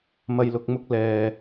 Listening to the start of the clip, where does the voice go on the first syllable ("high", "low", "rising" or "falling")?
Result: low